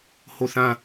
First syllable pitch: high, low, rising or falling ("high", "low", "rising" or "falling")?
falling